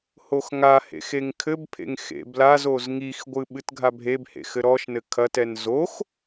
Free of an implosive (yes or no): no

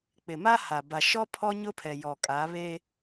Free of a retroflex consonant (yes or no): yes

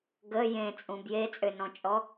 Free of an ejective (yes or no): no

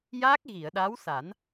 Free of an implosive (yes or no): no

